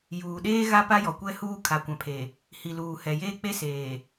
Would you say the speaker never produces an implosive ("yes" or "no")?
no